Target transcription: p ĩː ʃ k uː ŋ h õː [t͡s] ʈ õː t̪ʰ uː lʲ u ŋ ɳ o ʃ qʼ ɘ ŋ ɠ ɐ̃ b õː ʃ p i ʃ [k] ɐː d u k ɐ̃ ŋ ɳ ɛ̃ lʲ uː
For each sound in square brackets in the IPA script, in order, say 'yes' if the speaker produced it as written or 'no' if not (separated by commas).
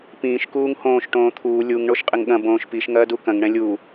no, no